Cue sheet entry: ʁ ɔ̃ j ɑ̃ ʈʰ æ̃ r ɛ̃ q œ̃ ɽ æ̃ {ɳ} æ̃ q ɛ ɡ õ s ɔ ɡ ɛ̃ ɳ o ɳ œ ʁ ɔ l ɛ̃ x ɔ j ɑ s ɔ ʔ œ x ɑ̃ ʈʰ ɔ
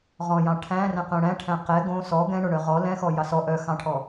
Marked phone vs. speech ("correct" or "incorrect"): incorrect